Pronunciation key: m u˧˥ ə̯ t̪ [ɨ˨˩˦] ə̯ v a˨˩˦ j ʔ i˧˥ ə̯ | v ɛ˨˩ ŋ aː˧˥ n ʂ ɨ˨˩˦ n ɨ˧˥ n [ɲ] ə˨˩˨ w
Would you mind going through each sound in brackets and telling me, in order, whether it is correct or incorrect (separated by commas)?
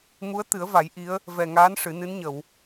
correct, correct